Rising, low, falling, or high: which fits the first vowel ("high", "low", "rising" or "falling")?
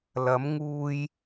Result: rising